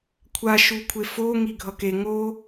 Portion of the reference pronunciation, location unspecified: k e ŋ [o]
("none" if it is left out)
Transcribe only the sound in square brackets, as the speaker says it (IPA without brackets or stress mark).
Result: o